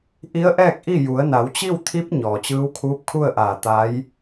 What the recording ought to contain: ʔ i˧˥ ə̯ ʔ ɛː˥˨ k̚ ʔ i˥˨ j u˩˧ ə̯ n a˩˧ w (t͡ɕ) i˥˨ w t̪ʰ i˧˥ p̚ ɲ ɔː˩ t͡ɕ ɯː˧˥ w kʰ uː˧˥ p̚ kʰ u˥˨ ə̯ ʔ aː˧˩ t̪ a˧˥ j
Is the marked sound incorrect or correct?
correct